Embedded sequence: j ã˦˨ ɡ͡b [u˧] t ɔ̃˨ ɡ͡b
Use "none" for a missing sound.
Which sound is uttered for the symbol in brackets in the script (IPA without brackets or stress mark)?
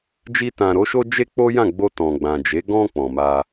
o˧